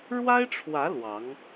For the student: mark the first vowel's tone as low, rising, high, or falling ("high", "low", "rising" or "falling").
high